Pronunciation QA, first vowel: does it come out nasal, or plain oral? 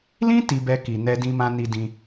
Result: nasal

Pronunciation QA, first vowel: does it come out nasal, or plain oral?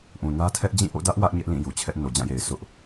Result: nasal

